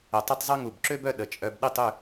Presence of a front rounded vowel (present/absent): present